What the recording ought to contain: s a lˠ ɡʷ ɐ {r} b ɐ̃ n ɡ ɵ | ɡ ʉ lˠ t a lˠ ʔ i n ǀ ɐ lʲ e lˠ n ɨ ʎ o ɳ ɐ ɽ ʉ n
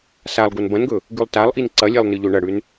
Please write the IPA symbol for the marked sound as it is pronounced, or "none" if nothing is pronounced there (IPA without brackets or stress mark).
n